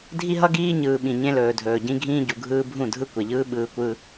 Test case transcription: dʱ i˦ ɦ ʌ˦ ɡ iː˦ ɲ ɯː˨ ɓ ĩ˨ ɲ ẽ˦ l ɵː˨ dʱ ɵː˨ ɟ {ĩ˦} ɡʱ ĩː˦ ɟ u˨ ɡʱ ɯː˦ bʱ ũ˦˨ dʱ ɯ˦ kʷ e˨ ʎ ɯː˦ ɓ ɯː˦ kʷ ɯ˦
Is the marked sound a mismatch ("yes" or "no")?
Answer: no